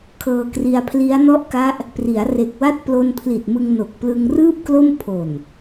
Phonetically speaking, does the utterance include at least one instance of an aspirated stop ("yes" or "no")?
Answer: yes